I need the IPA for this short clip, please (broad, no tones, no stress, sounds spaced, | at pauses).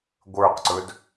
ɡʷ ə˞ q ǀ ɵ d